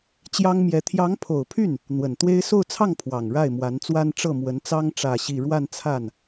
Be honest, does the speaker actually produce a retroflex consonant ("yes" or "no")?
yes